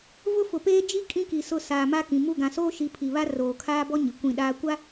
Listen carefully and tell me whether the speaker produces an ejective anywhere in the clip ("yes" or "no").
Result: yes